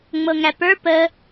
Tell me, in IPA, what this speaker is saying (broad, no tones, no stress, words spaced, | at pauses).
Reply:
ŋ͡mɤŋæpə˞ pə